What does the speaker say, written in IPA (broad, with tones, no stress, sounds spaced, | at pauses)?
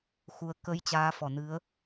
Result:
x u˨˦ ə̯ k ə˨˦ j t͡ɕ aː˨˦ f ɔ˧˩ n ɨ˨˦ ə̯